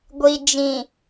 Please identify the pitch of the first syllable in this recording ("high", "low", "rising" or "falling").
low